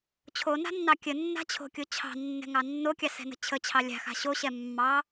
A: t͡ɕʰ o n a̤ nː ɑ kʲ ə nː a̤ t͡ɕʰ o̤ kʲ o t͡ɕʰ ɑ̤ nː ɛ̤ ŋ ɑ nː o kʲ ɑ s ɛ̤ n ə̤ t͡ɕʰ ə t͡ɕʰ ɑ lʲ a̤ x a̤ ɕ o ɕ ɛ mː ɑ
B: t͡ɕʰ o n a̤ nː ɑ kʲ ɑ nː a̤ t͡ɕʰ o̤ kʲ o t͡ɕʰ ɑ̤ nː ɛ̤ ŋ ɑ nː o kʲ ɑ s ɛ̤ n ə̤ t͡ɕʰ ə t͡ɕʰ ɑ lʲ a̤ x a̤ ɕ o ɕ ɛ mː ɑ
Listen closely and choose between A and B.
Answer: A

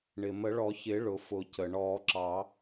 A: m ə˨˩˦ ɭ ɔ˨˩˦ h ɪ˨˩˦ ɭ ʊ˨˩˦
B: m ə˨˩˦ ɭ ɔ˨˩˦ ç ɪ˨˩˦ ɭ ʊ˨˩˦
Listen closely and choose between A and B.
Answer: B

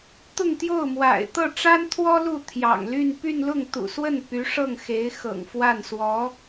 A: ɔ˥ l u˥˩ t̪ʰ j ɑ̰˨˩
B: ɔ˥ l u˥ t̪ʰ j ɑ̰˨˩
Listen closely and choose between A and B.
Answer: A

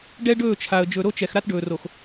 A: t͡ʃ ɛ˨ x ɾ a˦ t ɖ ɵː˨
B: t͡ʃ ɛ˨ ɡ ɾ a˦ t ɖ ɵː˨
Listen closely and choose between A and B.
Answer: A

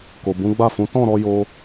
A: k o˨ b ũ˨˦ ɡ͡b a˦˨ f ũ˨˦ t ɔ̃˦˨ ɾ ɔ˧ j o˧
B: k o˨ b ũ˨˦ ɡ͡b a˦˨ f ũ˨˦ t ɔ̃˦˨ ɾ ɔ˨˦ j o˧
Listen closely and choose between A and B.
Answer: A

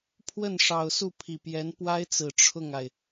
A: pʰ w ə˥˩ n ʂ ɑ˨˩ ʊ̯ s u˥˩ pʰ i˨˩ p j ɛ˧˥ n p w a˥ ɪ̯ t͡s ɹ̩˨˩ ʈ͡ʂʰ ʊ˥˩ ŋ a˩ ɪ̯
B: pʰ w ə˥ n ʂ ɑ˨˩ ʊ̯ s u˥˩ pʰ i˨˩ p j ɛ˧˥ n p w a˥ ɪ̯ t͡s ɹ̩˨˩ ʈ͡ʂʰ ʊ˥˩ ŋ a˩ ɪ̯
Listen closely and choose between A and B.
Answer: A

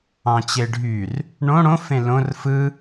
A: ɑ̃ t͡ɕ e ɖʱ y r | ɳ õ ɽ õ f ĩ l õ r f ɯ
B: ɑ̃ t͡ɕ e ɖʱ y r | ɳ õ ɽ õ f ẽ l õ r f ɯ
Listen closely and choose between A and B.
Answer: B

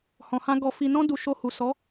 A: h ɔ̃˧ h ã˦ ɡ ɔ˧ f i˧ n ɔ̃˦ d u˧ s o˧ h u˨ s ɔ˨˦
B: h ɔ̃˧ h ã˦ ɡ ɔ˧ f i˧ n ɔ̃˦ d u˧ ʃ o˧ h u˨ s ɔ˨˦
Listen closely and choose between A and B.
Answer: B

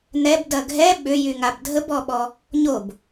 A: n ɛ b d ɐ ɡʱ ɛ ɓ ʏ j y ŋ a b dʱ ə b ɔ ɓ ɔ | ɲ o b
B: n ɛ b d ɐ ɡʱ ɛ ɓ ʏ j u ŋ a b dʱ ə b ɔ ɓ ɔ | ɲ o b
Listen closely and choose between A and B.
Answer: A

